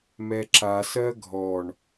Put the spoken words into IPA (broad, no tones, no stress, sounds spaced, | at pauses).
m ɛ ǁ a s ɜ ɡʱ ɔ ɳ